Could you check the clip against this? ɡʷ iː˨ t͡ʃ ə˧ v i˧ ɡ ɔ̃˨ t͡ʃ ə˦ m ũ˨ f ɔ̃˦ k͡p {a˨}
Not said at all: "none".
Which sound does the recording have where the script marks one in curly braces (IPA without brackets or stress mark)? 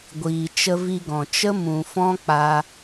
a˦